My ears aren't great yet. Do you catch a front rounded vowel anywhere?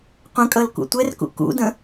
no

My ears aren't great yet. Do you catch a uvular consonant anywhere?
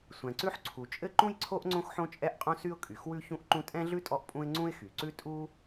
yes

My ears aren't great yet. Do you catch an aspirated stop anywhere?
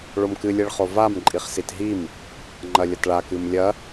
no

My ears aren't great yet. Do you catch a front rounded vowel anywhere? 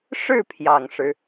no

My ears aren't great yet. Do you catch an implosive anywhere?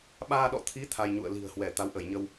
yes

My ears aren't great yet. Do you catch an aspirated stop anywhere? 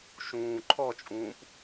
yes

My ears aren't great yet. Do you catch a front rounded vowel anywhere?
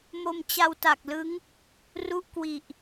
no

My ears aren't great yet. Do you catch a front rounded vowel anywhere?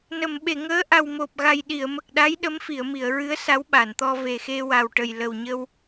no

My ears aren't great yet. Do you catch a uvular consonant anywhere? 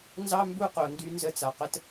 yes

